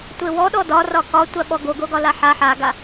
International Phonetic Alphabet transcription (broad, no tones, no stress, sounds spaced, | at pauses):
tʷ e w ɔ ɗ ɔ d ɒ r ɒ k ɒ tʷ a ɓ ɔ ɡ o ɡ o ɡ ɒ l a ħ a ħ a ɡ a